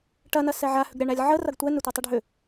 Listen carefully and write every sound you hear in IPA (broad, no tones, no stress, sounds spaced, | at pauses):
ʈ ɐ n ɐ s ɛ ʕ a h ʏ ɡ ɾʲ a ɳ æ lʲ ʕ ə r ɐ ɡ tʷ ɛ n ʏ tʷ ɐ tˤ ɛ ɖʱ ʏ